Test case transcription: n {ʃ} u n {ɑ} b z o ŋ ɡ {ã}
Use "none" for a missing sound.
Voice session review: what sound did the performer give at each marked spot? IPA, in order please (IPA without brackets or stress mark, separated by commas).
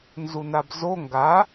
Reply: z, a, a